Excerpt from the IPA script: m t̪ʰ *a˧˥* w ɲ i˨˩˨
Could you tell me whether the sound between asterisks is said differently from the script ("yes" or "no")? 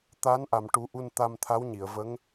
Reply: no